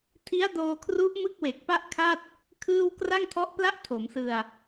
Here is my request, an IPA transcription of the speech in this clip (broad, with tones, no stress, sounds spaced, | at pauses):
tʰ i˦˥ a̯ d oː˧ kʰ r u˦˥ ʔ m ɯ˥˩ k̚ w e˨˩ k̚ p a˥˩ ʔ kʰ a˥˩ t̚ | kʰ ɯː˥˩ w k r a˥˩ ŋ tʰ ɔ˦˥ ʔ p l a˥˩ ʔ tʰ o˩˦ m s ɯ˧ a̯